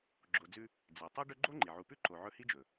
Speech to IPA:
ɡ͡ǁ o˨ d͡z ʉ˦ | d͡z e˩ tˤ i˥ ɖ ɵ˦ ɡ͡ǃ o˥ ŋ͡ǃ i˩ ʕ u˨ p ʉ˥ ǃ o˨ ʕ ɵ˦ h i˥ d͡ʒ ɵ˩

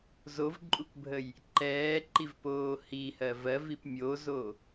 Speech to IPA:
z o v ǃʼ u k bʱ ə j | ǃ ɛː ǃ i v p oː h i h ɜ v ɜ v i p mʲ o z o

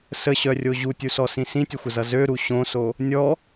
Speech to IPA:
s ə ɕ œ rʲ o ʑ u tʲ u s ɔ s ĩ s ĩ tʲ ɘ xʷ ə z ʌ z ø ɾ u ɕ õ s o | nʲ ɔ

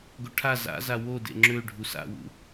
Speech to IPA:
ɡ o ʈʰ a z a̰ z a w o d ḛ ŋ͡ǁ ø ɖʱ u s a̰ w ṵ

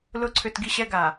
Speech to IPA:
l ʊ˨˦ ǀʰ ʏ˨ t ɡ i˦ ɕ ɛ˦ ɡ a˨

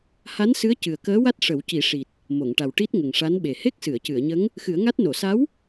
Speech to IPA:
h a˧˥ n s ɨ˧˥ ə̯ c ɨ˨˩ ə̯ k əː˧˥ w a˦˥ t̚ ʂ ə˨˩˦ w c i˨˩˦ ʂ i˨˩ t̚ | m o˨˩˨ ŋ ʈ a˨˩ w ʈ i˦˥ t̚ ŋ ə˨˩ ŋ ʂ a˧˥ n ɓ e˨˩ h e˦˥ k̚ s ɨ˨˩˨ ə̯ c ɨ˨˩˨ ə̯ ɲ ə˧˥ ŋ | x ɨ˨˩˦ ə̯ ŋ a˦˥ t̚ n o˨˩˨ s a˧˥ w

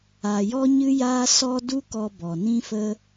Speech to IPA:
a˨ j ɔ˧ ɲ ɨ˧ j aː˧ s ɔ˦ d u˦ k ɔ˧ b ɔ˨ n ĩ˦ f ə˦

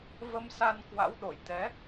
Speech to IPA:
v ə˧ m s a˧ n k w a̰˧˥ w ɗ o˧˩ j t̪ ɛ˨˦

